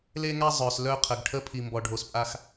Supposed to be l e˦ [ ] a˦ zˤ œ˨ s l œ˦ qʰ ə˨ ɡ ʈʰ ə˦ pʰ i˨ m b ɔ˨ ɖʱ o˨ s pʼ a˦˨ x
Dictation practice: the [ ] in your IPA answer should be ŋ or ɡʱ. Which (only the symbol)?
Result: ŋ